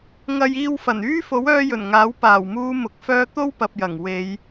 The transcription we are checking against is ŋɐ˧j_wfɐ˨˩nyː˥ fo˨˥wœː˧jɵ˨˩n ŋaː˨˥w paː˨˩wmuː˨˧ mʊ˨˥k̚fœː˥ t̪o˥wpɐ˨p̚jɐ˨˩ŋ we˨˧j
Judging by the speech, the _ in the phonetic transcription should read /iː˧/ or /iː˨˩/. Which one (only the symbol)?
iː˧